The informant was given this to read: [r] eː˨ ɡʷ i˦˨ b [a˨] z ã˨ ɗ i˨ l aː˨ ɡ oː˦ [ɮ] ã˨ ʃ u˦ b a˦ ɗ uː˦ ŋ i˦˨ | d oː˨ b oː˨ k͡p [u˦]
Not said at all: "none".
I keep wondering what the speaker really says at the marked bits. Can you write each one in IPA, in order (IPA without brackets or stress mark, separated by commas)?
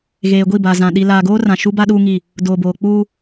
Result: ɣ, aː˨, r, uː˦